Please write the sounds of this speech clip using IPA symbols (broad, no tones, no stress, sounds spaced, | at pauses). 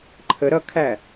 ǃʰ ə ɾ ʌ kʰ æ